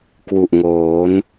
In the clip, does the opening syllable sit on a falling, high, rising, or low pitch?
low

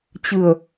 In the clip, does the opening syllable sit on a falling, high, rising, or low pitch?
low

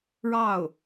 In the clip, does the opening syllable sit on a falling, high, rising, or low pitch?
falling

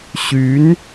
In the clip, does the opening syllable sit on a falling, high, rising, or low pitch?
rising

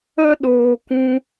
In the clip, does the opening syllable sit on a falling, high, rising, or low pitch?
high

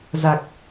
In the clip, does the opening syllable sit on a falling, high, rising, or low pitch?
low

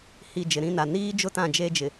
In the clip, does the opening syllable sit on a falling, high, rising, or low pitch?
low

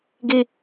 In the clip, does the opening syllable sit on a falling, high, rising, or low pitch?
high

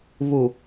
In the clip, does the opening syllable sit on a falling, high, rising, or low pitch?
low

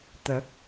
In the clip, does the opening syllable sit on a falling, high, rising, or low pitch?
rising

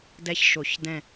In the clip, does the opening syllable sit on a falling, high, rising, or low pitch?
high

